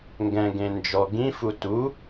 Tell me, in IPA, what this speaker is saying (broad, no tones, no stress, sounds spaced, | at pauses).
ŋ ɡ ɛ̃ ɡ ẽ n d͡ʒ ɔ ɡ ĩ f u t u